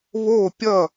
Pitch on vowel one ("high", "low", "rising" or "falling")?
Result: falling